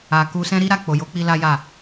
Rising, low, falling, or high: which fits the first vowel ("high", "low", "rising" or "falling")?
low